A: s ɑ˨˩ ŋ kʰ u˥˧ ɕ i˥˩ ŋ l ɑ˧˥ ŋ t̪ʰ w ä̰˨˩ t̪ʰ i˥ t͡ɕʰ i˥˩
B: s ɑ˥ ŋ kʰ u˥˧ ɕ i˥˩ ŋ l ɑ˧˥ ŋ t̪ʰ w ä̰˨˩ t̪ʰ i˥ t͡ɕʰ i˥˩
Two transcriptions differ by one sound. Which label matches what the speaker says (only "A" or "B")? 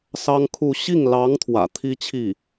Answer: B